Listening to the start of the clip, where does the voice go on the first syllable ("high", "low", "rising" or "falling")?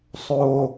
low